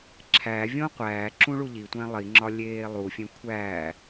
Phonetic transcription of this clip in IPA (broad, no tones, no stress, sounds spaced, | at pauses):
ǁʰ æ vʲ õ qʷ æː ǁ ũ ɭ u ʎ i tʷ æ̃ lˠ i ŋ͡ǁ ɒ lʲ eː lˠ u fʲ ẽ kʷʰ æ